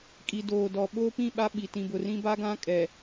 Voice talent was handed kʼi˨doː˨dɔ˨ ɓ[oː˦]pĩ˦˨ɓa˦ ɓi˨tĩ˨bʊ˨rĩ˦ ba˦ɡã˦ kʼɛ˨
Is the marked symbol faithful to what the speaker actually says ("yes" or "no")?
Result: yes